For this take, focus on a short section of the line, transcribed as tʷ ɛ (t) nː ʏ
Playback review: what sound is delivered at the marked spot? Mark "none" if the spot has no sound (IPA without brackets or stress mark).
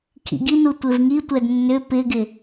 d